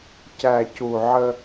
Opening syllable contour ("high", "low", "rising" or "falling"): low